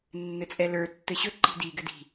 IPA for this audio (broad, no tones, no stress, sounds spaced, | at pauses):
nː ɘ t͡sʼ ɛ l ə˞ tː ɘ ɕ ɵ ǃ i̤ d i ɡ ɘ d i̤